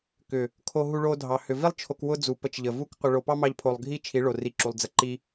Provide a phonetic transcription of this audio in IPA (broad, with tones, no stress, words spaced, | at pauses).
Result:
kʏ˨ | kʰo˦ ɦu˧ɭo˧ dʱɑ˨ hʏ˨vi˦lˠ t͡ʃʰo˧kwʊ˦d͡zu˨ pə˧t͡ʃʎə˨vu˦k qʷə˧ɭo˧ pɑ˦mɑ˧ʎpʰo˨lˠɡʱi˦˨ t͡ʃʰi˨˦ɭo˨ri˨ǁu˨lˠ d͡zə˨ǃi˧